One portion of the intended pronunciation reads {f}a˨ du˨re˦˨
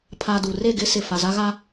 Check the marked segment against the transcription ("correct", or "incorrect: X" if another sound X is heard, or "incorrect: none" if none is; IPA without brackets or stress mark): incorrect: pʰ